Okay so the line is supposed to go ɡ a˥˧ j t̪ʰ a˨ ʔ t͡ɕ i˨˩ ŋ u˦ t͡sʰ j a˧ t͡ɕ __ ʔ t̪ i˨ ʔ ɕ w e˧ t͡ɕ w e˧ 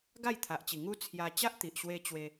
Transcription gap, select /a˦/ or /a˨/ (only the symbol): a˦